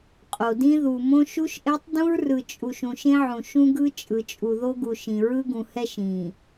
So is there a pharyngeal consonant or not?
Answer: yes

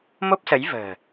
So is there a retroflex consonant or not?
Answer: no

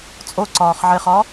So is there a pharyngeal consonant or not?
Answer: yes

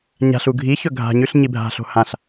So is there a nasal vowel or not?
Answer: yes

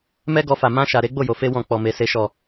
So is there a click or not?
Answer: no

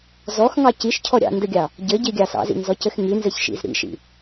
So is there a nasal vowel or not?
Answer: no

